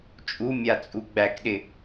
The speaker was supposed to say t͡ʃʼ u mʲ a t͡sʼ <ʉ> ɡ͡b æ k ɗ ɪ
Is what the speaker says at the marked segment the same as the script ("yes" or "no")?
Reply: no